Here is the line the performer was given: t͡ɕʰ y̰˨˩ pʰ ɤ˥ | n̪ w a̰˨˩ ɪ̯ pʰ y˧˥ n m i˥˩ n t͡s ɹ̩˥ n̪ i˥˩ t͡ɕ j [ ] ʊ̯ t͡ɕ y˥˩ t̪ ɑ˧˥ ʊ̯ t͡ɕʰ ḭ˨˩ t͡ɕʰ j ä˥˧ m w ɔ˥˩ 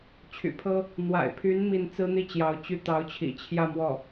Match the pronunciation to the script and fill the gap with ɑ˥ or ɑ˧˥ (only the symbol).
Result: ɑ˧˥